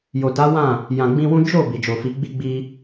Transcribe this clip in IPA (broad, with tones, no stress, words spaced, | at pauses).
jo˨ta˨˦ wã˦˨ | jã˨ɡ͡bĩ˧wũ˦ d͡ʒo˦˨ bi˨d͡ʒo˨fi˨˦ɡ͡bi˦ ɡ͡bi˧